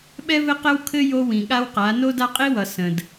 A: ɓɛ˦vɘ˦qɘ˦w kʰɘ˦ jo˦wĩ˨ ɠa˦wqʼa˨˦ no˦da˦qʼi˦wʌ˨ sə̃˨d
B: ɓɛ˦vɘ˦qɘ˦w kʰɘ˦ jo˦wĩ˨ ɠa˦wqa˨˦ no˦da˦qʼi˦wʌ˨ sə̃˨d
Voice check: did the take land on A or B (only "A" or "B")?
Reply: B